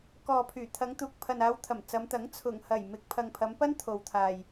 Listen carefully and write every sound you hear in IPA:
k ɔː˨ pʰ yː˨˩ t̪ʰ ɐ˨˧ ŋ t̪ uː˨ k̚ pʰ ɐ˨ n aː˨˧ w t̪ʰ ɐ˨˩ m t͡s ɐ˨˧ m t̪ ɐ˨˥ ŋ t͡sʰ ʊ˨˩ ŋ h ɐ˨˩ j m ɪ˨ k̚ pʰ ɐ˨ ŋ pʰ ɐ˨˧ m p ɐ˥ n t̪ʰ o˨ w t̪ʰ aː˨ j

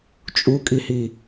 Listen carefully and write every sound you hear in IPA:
t͡ʃʼ u kʼ i h i

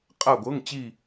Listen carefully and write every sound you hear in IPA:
qʼ a˧˩ ɡʷ ɤ˩˧˩ ŋ t͡ɕ i˧˩

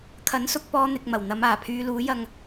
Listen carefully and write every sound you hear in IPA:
kʰ ɐ˨˥ n s ʊ˧ k̚ p ɔː˥ n̪ ɪ˧ k̚ m ɐ˨˩ w n̪ ɐ˨˧ m aː˨˩ pʰ yː˧ l uː˨˥ j ɐ˧ ŋ

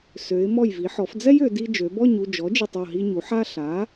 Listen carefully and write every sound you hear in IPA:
s ø˩˧ ɪ̯ m ɔ˧˩ j v i˩˧ ħ ɔ˩˧ f d͡z ɛ˦ j ø˩˧ d i˦ d͡ʒ ø˩˧ b ɔ˥˨ ɲ u˥˨ d͡ʒ ɔ˩˥ d͡ʒ i˧˩ tˤ ɔ˥˨ ɦ i˦ ɲ u˩˥ ħ a˦ ɬ a˩˥

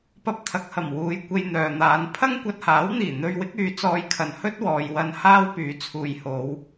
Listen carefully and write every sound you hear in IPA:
p ɐ˧ p̚ t̪ʰ ɐ˨˥ k̚ h ɐ˨˩ m w uː˨˧ j kʷ e˧ j n̪ œː˨ n̪ aː˨˧ n pʰ ɐ˥ ŋ kʷ ɐ˧ t̚ h aː˨˥ w n̪ iː˨˩ n̪ ɵ˧ ɥ w ɪ˨˥ k̚ yː˨˧ t͡s ɔː˧ j kʰ ɐ˨ n h ɵ˥ t̚ w ɔː˨ j w ɐ˧ n h aː˥ w p yː˨˥ t͡sʰ uː˨ j h o˨˧ w

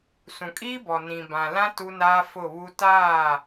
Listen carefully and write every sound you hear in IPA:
s ũ˨ kʼ iː˦ b ɔ˨ n ĩ˨ b ã˨ l ã˦ t u˦ n aː˦ f ʊ˦˨ β u˦ t aː˦˨

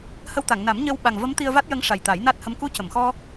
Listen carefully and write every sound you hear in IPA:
h ə˧ w t̪ a˨˩˨ ŋ n a˨˩˦ m ɲ ə˧ w ɓ a˨˩ ŋ v ə˧˥ m t̪ i˧ ə̯ v a˦˥ t̚ j ə˧˥ ŋ ʂ a˨˩ j t̪ a˨˩˦ j n a˦˥ t̚ h ə˧ m k u˧ c ə˨˩˨ m x ɔ˧

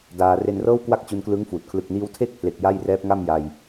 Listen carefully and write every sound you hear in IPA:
d aː˧ r e˧ n r ɤː˥˩ w k w a˥˩ k̚ t͡ɕ u˧ n k l ɯ˦˥ ŋ f uː˨˩ t̚ kʰ l ɯ˨˩ k̚ n iː˧ w tʰ e˥˩ k̚ pʰ l e˨˩ k̚ j a˥˩ j r ɛː˦˥ p̚ ŋ a˥˩ m j a˧ j

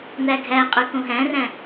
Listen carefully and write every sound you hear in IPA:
n̪ æ ɡʱ æ qʼ ʉ k õ ɦ æ̃ r æ̃

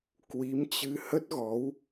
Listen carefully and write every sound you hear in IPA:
k w i˨˦ m t͡ɕ ɨ˧ h ə˦˥ t̚ ɣ ɔ˨˦ w

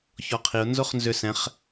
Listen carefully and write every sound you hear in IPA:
ç ɔ qʰ i ʊ̯ n z o χ n z ʏ s ɛ̃ χ

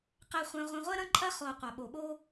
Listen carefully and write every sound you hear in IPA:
q ɛ˧ χʷ ɛ̃˧ ʁʷ ɐ̃˧ ʁʷ ɛ˦ ɾ ɐ̃˦ ǃʼ ɐ˦ χ o˨ qʷ a˨ ɓ o˨ ɓ o˦

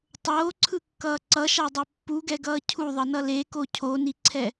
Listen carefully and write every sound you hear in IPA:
tˤ oː ǀʰ ɯ kː ʌː ǀ ʌ ʃ a dˤ e pː u ɡ ɛ ɡ ʌː cʰ u ðˤ ʌ n ʌ l e k o cʰ o n i ǀʰ ɛ

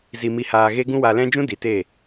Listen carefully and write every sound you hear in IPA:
z i˧ m i˧ h aː˧ ɣ e˦ ɡ ũ˦ w a˧ l ɛ̃˦ d͡ʒ ũ˦ d i˨ t e˦˨

